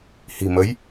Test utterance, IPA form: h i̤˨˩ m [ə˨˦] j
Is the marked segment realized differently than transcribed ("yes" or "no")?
no